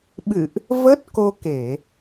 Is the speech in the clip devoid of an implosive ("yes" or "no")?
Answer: no